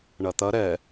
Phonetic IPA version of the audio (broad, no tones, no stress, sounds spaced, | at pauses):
ɳ ɐ t̪ ɐ ɾ ɛ